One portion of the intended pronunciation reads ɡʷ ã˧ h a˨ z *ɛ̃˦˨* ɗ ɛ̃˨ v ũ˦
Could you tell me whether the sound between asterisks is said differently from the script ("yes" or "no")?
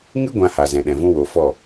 yes